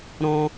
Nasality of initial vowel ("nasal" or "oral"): nasal